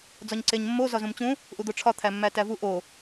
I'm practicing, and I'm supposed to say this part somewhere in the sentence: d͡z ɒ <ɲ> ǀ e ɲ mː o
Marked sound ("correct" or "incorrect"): correct